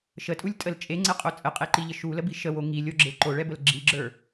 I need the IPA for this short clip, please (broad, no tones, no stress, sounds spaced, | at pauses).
ʃ ə tʼ u lʲ tʼ ə l t͡ʃʼ e ŋ͡ǀ ɛ qʼ o t͡sʼ ə qʼ e ǃ i ʎ ə ʃ u l ə b i ʃ ə w o ŋ i lʲ o ɡ͡ǁ e ǃ o ɭ ɛ b ə l ɡ͡ǁ i ɡ͡ǁ ə˞